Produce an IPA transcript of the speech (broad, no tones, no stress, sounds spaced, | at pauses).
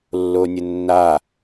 lː o nʲ ɘ nː a